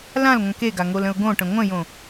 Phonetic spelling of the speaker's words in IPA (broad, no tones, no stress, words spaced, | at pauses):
lãlŋʷɛ̃k eɡaŋolə̃ʊ̯ ɡõʈə̃ ŋʷə̃jõ